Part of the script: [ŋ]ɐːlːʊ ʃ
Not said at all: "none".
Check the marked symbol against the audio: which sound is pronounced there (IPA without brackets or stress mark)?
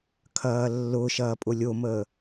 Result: kʰ